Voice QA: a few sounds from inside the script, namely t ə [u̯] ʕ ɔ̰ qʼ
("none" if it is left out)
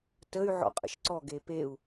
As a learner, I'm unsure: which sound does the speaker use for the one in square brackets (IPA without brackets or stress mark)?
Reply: y̯